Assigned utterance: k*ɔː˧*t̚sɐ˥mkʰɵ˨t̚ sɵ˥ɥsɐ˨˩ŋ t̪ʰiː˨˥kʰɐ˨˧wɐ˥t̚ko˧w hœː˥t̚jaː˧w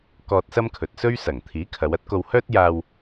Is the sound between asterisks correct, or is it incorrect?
correct